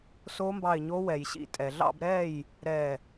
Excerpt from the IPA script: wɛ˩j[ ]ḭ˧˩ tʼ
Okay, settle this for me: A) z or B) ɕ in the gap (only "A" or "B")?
B